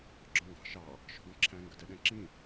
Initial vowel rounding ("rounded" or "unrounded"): rounded